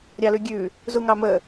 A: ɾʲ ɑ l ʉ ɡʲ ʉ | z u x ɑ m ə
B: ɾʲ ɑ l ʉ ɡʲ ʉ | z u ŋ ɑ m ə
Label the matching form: B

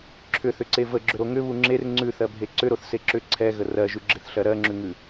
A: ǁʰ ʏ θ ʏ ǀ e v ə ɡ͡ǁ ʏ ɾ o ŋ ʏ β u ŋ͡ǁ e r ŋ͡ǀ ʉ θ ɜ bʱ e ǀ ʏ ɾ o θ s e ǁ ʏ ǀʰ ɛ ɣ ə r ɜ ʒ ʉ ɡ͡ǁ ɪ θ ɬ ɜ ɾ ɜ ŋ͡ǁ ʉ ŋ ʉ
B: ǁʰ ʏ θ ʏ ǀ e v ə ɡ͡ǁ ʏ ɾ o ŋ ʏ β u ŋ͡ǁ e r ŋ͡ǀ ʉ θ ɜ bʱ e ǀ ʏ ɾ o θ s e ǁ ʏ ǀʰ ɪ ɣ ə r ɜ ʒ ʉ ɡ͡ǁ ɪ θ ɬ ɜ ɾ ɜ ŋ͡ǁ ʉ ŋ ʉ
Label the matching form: A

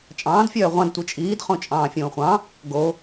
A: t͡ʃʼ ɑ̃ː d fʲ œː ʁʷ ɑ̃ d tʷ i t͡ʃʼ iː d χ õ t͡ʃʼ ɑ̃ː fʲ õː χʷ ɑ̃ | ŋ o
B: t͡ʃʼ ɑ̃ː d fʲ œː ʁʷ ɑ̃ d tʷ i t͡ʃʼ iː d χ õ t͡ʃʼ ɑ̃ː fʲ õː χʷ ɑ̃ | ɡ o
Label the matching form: B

